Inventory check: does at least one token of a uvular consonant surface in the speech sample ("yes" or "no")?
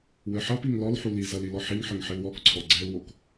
no